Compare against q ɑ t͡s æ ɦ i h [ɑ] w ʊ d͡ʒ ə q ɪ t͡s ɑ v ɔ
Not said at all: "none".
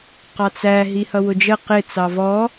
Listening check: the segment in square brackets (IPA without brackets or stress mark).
ʌ